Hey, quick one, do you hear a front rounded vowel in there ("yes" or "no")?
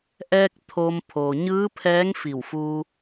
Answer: no